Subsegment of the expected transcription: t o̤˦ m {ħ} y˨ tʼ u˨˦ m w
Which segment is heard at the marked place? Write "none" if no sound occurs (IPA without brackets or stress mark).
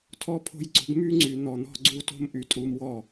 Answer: ʔ